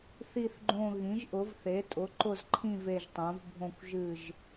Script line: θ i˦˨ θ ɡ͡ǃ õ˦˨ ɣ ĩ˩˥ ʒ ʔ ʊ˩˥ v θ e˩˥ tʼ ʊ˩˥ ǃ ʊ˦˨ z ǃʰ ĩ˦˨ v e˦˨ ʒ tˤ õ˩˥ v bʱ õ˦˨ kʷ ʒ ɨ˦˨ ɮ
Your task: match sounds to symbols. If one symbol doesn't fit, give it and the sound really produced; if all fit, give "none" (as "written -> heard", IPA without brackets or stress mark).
ɮ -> ʒ